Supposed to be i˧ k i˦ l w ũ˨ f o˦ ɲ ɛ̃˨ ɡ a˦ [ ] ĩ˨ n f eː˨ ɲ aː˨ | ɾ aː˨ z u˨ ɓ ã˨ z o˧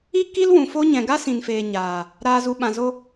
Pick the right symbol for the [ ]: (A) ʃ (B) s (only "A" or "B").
B